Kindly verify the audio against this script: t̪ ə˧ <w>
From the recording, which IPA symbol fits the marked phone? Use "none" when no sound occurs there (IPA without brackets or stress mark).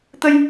j